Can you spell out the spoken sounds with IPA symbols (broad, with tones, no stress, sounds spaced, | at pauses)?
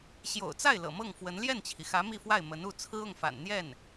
ɕ j o̰˨˩ ʊ̯ t͡s a˥˩ ɪ̯ l ɤ̰˨˩ m ɤ˥˩ ŋ f w ə˧˥ n l j ɛ˥˩ n t͡ɕʰ i˩ x ä˧˥ m i˥˧ f w a˥˩ ɪ̯ m ə˧˥ n u˥˩ t͡sʰ ɹ̩˥ ʊ˥˩ ŋ f a̰˨˩ n n̪ j ɛ˥˩ n